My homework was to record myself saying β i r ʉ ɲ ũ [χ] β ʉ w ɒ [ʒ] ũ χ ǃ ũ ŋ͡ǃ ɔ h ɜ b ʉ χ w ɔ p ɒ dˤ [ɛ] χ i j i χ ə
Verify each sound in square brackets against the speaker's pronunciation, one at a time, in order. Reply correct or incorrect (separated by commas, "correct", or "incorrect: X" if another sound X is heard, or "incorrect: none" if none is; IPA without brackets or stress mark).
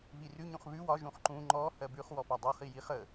correct, correct, incorrect: ɜ